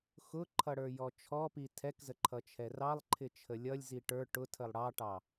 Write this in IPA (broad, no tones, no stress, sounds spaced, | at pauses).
x ʊ ǃʰ ʌ ɽ ə˞ j ɔ t͡ʃʰ ɔ p i tʰ ɛ k z ə ǃʰ ʌ t͡ʃʰ ɛ r ɑ lˠ ǃʰ ɪ t͡ʃʰ ə lʲ ʌ lʲ z i ʈ ə˞ ʈ ʊ tʰ ə lˠ ɽ ɑ ʈ ɑ